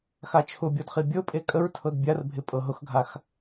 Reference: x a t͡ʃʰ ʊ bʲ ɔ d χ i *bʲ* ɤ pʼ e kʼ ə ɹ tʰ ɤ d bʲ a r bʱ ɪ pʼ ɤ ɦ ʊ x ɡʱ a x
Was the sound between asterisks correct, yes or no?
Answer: yes